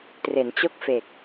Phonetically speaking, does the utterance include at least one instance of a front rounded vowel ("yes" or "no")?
no